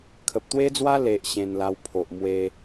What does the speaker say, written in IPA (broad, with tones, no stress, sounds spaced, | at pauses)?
kʰ ə˨ p̚ t̪ w e˦ d͡z w a˦ l e˨ ʔ ɕ ẽ˧ n l a˧ w pʰ o˨ ʔ m w e˧